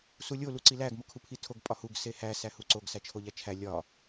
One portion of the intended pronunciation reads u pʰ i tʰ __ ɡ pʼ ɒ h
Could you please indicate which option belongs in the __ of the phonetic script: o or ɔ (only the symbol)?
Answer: o